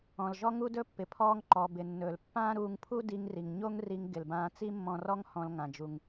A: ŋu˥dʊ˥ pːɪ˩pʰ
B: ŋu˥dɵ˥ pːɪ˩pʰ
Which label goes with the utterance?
B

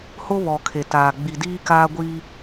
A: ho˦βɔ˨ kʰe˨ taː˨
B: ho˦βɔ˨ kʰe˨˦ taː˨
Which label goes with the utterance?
A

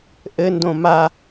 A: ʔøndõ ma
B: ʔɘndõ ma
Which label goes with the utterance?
B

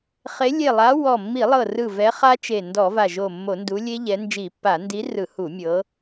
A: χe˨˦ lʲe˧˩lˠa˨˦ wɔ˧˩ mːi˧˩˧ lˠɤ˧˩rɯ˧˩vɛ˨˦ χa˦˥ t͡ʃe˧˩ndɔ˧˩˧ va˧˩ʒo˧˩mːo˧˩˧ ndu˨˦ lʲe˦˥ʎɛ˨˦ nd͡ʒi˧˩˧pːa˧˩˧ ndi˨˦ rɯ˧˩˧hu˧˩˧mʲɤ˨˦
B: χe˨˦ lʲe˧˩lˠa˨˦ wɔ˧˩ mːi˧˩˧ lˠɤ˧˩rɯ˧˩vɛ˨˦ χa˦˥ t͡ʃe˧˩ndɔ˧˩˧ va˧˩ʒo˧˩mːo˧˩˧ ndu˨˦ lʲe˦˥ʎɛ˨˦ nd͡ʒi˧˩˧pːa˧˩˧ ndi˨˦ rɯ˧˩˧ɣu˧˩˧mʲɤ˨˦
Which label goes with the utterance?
A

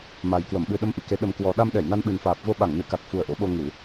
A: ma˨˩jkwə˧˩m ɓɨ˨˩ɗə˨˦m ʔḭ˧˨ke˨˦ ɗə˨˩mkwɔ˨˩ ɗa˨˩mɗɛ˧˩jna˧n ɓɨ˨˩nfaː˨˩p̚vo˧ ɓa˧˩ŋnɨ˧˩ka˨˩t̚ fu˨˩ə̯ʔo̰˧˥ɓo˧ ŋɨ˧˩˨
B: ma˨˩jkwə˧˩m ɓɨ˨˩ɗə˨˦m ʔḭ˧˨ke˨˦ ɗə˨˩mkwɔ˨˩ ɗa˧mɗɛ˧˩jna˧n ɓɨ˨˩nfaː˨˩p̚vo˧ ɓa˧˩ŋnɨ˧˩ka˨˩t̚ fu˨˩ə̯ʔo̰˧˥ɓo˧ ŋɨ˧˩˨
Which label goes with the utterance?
B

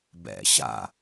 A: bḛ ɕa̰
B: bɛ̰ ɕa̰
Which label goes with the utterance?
B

